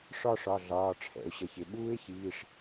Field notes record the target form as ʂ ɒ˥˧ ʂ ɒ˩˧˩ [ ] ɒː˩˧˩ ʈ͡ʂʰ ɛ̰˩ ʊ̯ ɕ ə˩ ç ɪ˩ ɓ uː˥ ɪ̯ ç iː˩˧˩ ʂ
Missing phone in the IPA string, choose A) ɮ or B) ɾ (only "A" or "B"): A